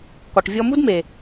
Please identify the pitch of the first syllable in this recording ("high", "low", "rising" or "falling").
low